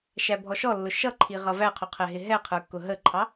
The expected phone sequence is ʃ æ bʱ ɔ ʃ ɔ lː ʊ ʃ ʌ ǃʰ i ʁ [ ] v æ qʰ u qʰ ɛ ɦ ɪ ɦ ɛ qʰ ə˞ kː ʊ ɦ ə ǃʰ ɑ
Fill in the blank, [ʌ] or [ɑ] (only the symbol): ʌ